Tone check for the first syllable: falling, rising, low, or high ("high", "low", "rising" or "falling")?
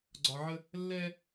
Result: low